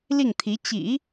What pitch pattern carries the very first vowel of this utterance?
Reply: falling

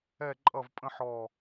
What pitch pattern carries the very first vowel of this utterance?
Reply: falling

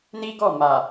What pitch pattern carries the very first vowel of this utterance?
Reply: high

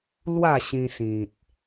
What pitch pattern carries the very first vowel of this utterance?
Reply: falling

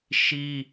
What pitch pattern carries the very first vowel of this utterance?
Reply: high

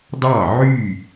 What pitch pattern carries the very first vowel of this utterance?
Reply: falling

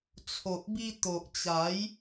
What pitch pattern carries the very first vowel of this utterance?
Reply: low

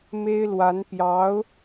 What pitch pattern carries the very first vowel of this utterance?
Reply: high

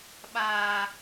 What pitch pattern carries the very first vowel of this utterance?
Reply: high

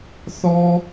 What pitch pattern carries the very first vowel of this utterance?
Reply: high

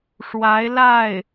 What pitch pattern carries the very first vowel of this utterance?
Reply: rising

